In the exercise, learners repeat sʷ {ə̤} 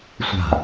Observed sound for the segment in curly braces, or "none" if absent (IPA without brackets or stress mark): a̤